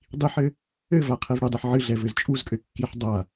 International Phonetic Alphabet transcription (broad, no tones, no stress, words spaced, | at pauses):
dˤiħɘ | ɘva qʰɛvɽedˤɨħ ʕɨɮɛ vɘzt͡ʃʼuzkʼɘ kːiħ dˤa